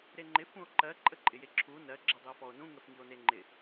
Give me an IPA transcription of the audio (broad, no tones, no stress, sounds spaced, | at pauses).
ɾ e ŋ͡ǃ ɪ f ũ o̯ ǃ ɜ ǃʼ ə ǃʼ ɪ j e ǁʰ u n ɜ ɡ͡ǁ ɐ dˤ ɪ o̯ f ɔ o̯ n ũ ŋ ə f ŋ i o̯ n e ŋ͡ǃ ɪ